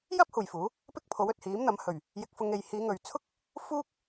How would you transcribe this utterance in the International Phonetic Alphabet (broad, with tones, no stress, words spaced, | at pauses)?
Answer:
jɐ˥p̚ huː˨jfuː˨˥ | pɪ˥k̚pʰo˨˥wɵ˨t̚ hiː˨˥mn̪ɐ˨˥m hɵ˨˩ɥ | jɪ˧k̚fʊ˧ŋ e˨jhiː˨˧ŋɵ˨ɥt͡sʰʊ˥k̚ | fuː˥k̚